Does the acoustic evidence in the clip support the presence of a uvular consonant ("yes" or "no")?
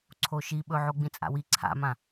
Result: no